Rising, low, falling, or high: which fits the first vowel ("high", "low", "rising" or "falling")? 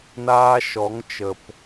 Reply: high